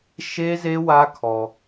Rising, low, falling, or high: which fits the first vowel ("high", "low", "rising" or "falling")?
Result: high